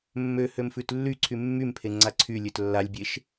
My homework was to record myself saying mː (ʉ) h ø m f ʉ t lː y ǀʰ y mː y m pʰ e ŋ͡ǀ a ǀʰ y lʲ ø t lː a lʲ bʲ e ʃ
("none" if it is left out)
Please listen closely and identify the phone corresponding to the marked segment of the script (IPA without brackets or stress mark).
ø